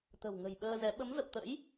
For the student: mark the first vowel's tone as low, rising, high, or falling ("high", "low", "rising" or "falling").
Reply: low